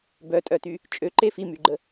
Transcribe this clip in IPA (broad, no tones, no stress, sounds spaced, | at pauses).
b œ tʼ œ t y | t͡ʃʼ ø ǃ e f i m y ɡ͡ǃ ə